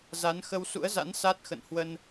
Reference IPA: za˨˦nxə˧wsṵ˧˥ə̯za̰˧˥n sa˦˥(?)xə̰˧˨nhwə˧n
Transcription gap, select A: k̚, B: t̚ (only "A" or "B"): B